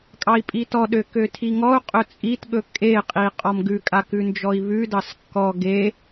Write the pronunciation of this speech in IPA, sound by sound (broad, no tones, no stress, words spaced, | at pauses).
kʼɑi̯pʼitɔɗø køtʰiŋɔu̯qʼɵ t͡sʼitɠɵ kʼeqʼi qʼɔmɡʉkʼa kʉnd͡ʒɔi̯βʉdɑs kːɔ ɡe